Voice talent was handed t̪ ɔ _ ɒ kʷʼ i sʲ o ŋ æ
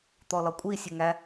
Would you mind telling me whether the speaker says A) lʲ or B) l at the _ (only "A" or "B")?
B